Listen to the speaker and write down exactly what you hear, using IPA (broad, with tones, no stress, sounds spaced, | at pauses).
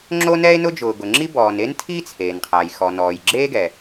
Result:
ŋ͡ǁ o˥ n ɛ˥ e̯ n ʊ˥ d͡ʒ ʊː˩ ɡ ʊ˩ ŋ͡ǁ i˥ b ɔː˩ n e˥ n tʰ iː˥ t͡sʰ eː˩ n qʰ a˩ j x ɔ˩ n ɔː˩ j ɡ͡ǁ eː˥ ɡ ɛ˩